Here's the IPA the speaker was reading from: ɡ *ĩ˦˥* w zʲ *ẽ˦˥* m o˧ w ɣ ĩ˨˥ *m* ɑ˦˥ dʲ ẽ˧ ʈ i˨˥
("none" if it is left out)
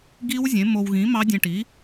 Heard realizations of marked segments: i˦˥, ẽ˨˥, m

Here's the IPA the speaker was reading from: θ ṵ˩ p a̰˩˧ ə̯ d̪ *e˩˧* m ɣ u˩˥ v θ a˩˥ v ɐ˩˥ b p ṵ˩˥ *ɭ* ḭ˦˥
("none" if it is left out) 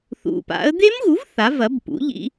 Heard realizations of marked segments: e˦˥, ʎ

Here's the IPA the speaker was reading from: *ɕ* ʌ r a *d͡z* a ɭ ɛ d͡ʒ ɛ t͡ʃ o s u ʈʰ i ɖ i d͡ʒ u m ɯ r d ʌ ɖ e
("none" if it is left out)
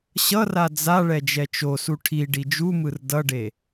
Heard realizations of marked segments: ɕ, d͡z

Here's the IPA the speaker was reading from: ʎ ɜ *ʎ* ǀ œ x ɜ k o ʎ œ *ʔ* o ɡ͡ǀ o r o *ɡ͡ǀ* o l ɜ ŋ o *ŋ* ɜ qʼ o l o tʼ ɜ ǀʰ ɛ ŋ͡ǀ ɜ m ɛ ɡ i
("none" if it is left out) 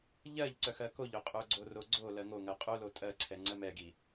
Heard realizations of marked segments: ʎ, qʼ, ɡ͡ǀ, ŋ

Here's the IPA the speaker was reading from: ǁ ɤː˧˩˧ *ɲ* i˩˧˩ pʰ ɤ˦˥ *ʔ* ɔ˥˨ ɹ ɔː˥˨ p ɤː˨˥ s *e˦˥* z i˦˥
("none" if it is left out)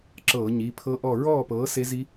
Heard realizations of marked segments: ɲ, ʔ, e˦˥

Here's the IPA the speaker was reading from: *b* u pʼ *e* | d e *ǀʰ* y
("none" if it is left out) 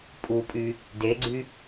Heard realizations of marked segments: pʼ, y, ɡ͡ǀ

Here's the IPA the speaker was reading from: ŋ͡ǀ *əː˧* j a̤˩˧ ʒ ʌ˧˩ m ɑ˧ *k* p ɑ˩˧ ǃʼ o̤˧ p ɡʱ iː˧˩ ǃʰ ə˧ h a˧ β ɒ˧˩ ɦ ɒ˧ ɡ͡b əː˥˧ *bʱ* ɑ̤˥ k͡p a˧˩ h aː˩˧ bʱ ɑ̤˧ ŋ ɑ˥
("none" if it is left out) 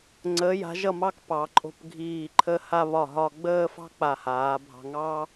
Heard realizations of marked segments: əː˩˧, k, f

